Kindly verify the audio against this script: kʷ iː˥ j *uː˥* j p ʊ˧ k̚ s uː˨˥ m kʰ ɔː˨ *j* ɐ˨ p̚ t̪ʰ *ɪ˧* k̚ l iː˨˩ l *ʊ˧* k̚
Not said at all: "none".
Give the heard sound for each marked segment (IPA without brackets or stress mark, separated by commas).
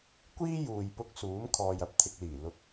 uː˨, j, ɪ˨, ʊ˨